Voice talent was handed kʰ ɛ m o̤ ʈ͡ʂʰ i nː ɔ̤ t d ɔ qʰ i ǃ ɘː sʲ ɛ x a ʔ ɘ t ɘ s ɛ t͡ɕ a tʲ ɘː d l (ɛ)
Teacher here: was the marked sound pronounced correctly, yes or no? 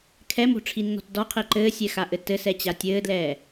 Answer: no